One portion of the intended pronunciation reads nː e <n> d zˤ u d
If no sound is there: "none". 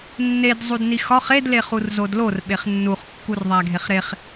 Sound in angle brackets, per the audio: none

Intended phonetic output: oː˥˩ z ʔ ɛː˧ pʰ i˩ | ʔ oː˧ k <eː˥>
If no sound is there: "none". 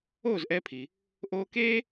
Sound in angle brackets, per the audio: eː˥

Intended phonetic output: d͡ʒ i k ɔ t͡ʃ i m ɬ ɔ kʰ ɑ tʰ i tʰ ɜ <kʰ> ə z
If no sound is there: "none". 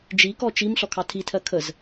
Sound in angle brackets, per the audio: kʰ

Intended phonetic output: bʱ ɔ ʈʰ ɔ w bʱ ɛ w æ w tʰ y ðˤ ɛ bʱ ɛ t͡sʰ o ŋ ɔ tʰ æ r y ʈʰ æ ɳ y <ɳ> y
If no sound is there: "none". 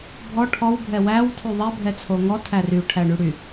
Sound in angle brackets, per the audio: ɽ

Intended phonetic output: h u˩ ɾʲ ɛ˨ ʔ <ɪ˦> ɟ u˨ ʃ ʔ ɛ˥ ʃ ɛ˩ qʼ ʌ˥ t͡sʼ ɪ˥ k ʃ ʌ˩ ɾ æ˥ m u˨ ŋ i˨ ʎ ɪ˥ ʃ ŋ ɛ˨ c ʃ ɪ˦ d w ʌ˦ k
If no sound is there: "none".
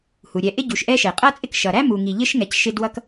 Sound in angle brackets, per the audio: ɪ˥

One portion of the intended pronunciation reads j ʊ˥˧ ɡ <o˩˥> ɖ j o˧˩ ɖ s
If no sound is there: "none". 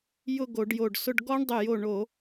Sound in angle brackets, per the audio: o˧˩˧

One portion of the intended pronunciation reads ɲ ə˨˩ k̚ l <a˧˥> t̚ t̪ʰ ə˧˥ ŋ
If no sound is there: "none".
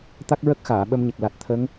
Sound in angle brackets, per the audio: a˨˩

